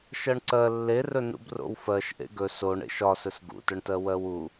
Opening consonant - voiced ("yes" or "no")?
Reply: no